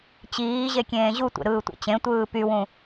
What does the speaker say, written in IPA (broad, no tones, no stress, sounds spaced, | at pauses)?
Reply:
t͡ɕ iː ʑ e kʲ ẽː ʑ u tʷ ḛ ɾ ɯː tʷ ḭ t͡ɕ ẽ tʷ ɯː p y w ũ